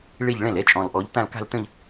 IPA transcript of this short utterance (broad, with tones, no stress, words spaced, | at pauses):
ɭe˥˧ʎɭɛ̃˥˩lɛ˦˥ t͡ʃʼɔ̃˨lʔɔ˨˦ʎtã˥˧l ka̤˥˧ltə̃˥˧ʎ